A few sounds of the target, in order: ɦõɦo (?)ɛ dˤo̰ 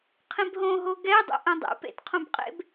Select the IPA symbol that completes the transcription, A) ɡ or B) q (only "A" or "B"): A